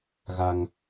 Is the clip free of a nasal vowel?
yes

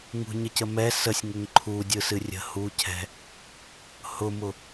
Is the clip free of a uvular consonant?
yes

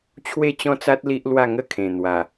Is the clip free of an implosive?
yes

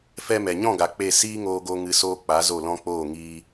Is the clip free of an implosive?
yes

